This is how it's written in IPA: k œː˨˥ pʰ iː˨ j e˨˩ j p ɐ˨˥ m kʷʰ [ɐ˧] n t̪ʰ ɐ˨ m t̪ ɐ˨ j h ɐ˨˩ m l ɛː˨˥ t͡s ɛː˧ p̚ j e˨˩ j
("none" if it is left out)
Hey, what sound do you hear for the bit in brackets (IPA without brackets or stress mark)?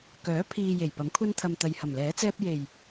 ɐ˧